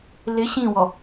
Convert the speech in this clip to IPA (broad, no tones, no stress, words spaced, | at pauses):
lɪ ɕĩwɔ